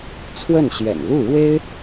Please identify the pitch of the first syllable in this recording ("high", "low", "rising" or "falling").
falling